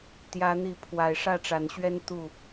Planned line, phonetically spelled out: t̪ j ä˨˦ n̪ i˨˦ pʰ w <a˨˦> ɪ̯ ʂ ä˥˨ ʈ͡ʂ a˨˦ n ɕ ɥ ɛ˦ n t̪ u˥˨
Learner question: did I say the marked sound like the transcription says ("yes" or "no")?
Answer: no